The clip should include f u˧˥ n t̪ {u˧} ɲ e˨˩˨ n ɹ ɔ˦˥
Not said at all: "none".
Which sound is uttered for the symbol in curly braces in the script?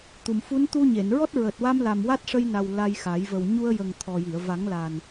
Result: u˧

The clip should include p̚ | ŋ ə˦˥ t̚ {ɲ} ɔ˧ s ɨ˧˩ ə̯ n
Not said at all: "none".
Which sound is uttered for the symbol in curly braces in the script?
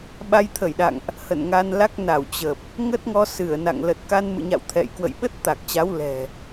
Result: ŋ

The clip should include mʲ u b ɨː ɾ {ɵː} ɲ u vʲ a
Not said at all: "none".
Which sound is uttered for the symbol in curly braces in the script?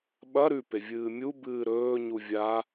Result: ɵː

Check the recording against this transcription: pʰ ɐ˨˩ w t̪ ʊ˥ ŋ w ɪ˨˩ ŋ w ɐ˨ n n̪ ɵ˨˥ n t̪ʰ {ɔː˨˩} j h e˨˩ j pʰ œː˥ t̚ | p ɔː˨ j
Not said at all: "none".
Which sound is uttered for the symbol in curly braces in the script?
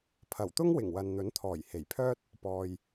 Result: ɔː˨˩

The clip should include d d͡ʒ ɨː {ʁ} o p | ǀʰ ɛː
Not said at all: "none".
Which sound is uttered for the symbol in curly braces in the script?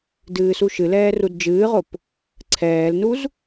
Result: ʁ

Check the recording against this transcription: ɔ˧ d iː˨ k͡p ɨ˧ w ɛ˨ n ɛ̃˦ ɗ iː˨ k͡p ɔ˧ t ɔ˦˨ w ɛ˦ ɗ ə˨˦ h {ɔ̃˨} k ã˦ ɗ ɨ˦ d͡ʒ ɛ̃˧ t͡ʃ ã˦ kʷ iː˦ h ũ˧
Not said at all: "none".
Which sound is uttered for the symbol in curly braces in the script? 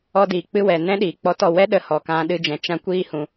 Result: ɔ˨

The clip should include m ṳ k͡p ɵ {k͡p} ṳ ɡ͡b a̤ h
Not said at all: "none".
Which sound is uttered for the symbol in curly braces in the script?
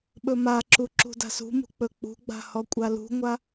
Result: k͡p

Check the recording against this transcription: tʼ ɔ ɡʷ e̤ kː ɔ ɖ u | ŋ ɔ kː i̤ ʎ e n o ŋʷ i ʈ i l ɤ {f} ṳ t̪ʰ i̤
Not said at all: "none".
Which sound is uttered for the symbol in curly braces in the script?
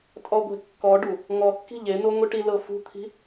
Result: f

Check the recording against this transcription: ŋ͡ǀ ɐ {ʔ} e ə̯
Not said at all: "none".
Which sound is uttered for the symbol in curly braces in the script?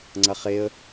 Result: χ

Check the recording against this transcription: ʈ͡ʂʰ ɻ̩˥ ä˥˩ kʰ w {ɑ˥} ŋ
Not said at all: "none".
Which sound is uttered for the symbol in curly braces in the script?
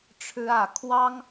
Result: ɑ˥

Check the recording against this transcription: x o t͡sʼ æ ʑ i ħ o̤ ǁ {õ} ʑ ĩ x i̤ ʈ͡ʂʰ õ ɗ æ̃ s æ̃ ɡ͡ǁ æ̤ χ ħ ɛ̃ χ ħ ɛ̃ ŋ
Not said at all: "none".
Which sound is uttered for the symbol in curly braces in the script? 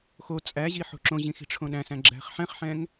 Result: õ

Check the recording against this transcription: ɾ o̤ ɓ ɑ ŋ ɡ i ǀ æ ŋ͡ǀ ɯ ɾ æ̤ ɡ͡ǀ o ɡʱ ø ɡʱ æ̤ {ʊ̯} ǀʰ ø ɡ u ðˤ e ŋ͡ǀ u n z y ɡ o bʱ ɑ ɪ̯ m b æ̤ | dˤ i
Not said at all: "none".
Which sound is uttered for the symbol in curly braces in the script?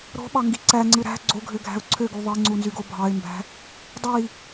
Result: ʊ̯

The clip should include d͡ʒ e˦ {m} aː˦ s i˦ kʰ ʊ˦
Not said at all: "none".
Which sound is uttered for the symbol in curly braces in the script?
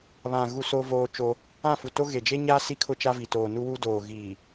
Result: ɲ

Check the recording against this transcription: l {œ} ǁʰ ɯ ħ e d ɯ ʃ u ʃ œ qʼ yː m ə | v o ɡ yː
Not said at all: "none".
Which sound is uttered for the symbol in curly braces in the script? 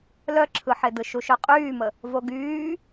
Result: œ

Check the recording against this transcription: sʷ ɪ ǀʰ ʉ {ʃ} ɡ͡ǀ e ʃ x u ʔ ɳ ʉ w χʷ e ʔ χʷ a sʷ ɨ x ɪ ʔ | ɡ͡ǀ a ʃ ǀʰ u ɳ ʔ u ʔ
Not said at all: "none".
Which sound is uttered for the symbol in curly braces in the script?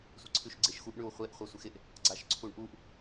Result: ʃ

